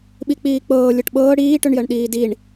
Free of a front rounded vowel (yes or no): no